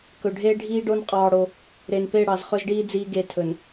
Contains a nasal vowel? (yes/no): no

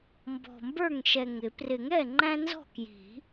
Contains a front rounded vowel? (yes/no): no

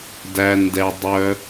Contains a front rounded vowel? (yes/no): yes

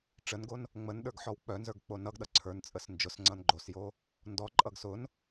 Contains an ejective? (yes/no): yes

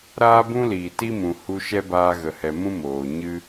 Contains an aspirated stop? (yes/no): no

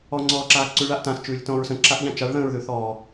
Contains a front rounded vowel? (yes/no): no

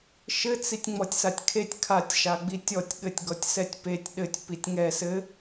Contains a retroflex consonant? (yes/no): no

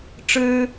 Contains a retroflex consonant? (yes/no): yes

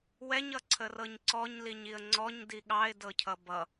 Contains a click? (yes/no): yes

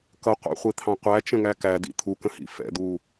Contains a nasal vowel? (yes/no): yes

